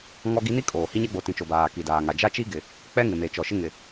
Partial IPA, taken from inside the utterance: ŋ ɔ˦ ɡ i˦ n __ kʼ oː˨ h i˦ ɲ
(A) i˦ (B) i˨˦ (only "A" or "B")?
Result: A